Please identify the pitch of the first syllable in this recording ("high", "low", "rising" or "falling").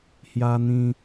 high